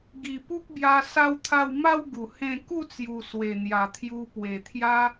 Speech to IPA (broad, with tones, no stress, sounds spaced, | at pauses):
ɡ i˨˩ p u˦ k̚ b j a˧ s a˦ w t̪ʰ a˥˧ w m a˦ w ɡ u˨˩ h ẽ˥˧ k u˥˧ t͡s j u˨˩ s w e˨˩ n̪ j a˨˩ t̪ʰ j u˧ p w e˨˩ t̪ʰ j a˦